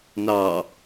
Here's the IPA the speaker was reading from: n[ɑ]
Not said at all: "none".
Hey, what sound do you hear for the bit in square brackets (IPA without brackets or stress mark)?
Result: ɑ